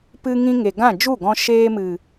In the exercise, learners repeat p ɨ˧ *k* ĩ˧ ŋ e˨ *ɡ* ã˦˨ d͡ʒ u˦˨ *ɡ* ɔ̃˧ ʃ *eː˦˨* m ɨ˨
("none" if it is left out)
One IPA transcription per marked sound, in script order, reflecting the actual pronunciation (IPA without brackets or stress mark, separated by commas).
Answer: ŋ, ɡ, ɡ, eː˧